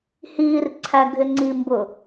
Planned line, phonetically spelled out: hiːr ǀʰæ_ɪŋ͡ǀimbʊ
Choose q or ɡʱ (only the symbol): ɡʱ